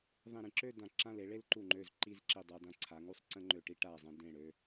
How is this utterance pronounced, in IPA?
ðˤ ĩ˧˩ ɾ ĩ˥˧ ǁ ø˥˧ d ã˧˩ ǁ ã˥˧ l e˩˧ ɭ e˥ l ǃ u˧˩ ŋ͡ǃ ø˧˩ z ǃ i˧ z ǁ i˧˩ dˤ a˧ d ã˧ ǀʰ a˩˧ ŋ u˥˧ sˤ ǀ ə̃˥ ŋ͡ǃ ø˧˩ ʈ i˥ ʈ a˧˩ zˤ ẽ˧ d ẽ˧˩ ɽ ø˧

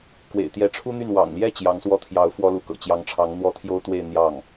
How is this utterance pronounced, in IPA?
k w ḛ˨˩ ɪ̯ t̪ j ɛ˧˥ ʈ͡ʂʰ u˥ n̪ y˥˩ n w ɑ̰˨˩ ŋ l j ɛ˥˩ t͡ɕ j ɑ˧˥ ŋ s w ɔ˥˩ t̪ʰ j ɑ˧˥ ʊ̯ f w ɔ˥ l u˧˥ k ɤ̰˨˩ t͡ɕ j ɑ˧˥ ŋ ʈ͡ʂʰ ɑ˧˥ ŋ n̪ w ɔ˥ t̪ʰ j o˥ ʊ̯ t̪ w e˥˧ ɪ̯ n̪ j ɑ˥˩ ŋ

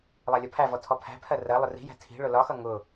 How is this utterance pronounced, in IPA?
lˠ æ lʲ ɒ pʰ æ v ɔ tʰ ɔ pʰ æ̤ pʰ ɜ r ɜ lˠ ʊ r i̤ j æ̤ tʰ i̤ ɭ ʊ l ɒ x ʌ ŋ ʊ

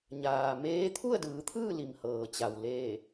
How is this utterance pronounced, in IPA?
ɲ aː˩ m eː˧˥ t̪ʰ u˥˨ ə̯ d ɯː˩˧ t̪ʰ ɯː˥˨ l i˩ m h ɤː˩ t͡ɕ a˩ w l eː˧˩

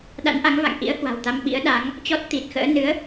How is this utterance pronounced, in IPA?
ɗ a̰˧˥ n ʔ a˨˦ ŋ v a̰˧˨ ŋ ʔ ḭ˧˥ ə̯ h w a̤˨˩ w t̪ a˧ m ɓ ḭ˧˥ ə̯ ɗ a˨˦ ŋ | t͡ɕ ɔ˦˥ t̚ t̪ i˨˩ t̚ x ə̰ː˧˥ n ɨ˨˦ ə̯

